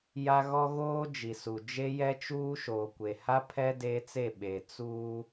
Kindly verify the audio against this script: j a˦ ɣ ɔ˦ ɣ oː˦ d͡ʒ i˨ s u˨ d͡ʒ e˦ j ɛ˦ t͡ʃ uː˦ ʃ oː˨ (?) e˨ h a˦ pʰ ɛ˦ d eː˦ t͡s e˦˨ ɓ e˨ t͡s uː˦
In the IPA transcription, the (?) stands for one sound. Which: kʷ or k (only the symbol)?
kʷ